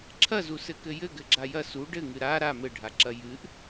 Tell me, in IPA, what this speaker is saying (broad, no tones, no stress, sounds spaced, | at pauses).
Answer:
ǁʰ ɐ z u s ɘ k ɘ j ɘ ɡ ɘ ɡ͡ǁ a j ɐ s u ɖ ɘ ŋ ɨ ɾ a ɾ a m ɘ ɖʱ a ǁ ɐ j ɨ ʔ